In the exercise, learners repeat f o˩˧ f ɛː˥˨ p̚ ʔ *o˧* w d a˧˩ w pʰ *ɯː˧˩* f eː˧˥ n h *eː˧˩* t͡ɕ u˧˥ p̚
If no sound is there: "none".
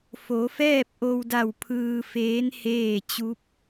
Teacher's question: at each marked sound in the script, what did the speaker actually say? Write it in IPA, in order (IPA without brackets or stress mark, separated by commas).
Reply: o˧, ɯː˧, eː˥˨